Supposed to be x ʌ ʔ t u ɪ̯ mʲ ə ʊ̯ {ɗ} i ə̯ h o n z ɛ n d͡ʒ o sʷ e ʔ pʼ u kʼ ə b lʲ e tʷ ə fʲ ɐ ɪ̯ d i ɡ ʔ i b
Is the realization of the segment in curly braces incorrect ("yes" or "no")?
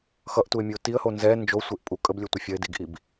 yes